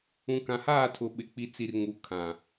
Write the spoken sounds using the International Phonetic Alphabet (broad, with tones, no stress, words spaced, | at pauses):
ũ˨kã˨haː˦˨tʰʊ˨ ɓɪ˨k͡pi˨t͡si˨r ŋu˨ kʰã˨